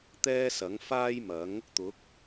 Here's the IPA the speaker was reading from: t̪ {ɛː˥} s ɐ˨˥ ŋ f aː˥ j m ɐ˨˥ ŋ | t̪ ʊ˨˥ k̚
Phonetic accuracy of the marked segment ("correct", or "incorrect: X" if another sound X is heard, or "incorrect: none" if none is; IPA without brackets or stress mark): correct